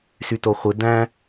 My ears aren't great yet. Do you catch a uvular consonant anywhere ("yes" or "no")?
yes